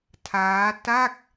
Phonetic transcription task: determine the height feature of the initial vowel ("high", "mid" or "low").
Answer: low